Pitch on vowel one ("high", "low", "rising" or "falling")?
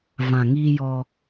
low